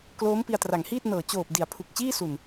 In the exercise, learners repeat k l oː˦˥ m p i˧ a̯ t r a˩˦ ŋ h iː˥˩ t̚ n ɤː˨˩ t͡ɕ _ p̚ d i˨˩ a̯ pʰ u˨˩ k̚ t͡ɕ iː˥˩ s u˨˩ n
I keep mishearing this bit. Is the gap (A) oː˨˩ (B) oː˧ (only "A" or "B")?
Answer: A